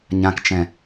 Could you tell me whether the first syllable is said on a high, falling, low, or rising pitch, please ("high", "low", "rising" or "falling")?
low